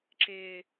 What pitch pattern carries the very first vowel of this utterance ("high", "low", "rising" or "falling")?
low